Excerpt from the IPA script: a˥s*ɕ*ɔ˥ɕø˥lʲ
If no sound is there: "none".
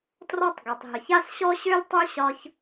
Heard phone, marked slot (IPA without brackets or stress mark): ɕ